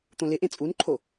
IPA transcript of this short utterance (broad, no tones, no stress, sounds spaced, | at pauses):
t̪ õ l ɪ ʔ ẽ t͡sʼ u n ǃʰ o